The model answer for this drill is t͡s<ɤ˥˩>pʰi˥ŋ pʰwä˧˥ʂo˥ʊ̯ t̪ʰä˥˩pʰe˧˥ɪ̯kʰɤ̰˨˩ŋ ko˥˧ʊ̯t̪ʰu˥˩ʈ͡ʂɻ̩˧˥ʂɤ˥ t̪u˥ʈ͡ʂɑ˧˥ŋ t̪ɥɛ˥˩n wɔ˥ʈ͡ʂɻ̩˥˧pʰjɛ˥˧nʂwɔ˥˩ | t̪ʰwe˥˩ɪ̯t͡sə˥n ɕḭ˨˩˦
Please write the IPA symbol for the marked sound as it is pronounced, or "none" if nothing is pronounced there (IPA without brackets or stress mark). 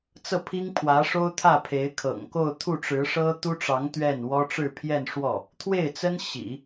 ɤ˥˩